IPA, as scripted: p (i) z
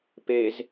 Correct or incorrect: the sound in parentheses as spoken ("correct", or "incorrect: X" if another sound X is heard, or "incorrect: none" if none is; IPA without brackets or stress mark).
incorrect: e